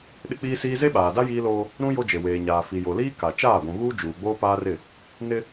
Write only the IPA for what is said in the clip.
ɗ ɪ˦ k͡p iː˦ s iː˦ z e˦ ɓ aː˨ d a˦ j iː˦ l oː˦ | ɾ ũ˦ j o˦ d͡ʒ e˨ w eː˨ ɲ aː˨ f i˨ j o˨ l iː˦ k a˨ t͡ʃ aː˦˨ ɡʷ ũ˨ ɣ uː˦ d͡ʒ uː˨ ɡ͡b oː˦ p aː˦ r ɪ˦˨ | n ɪ˦

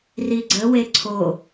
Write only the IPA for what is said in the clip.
r i ɡ͡ǀ ə w e ǀʰ o

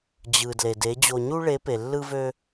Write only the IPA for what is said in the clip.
d͡ʑ ɯ˨ d l e˨ d e˨˦ d͡ʑ o˧ ɲ u˦ ɭ e˨˦ p e˨ lː ɯ˦ v ø˦

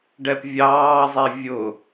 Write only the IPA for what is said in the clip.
ɖ ɛ p vʲ ɑː zˤ i vʲ ʊ

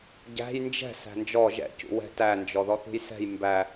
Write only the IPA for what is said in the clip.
ɟ æ̤ j n d͡ʒ ɛ̤ s æ̤ n d͡ʒ ɔ ʒ ɛ̰ c ṵ w ɛ̤ t æ n d͡ʒ ɔ ð ɔ θ ṳ j s ɛ̤ j m b æ

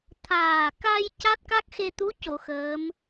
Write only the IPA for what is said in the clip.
t̪ʰ aː˨˩ k a˧ j c a˦˥ t̚ k a˦˥ k̚ x e˧ t̪ u˧˥ c o˨˩˨ x əː˧˥ m

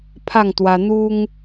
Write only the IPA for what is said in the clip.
pʰ a˥˧ ŋ t̪ w a˧ n̪ u˦ ŋ

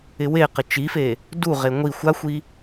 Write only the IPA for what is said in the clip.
ɪ w e q ɪ t͡ʃ i f e | d u ʁ e ŋʷ i xʷ a xʷ i

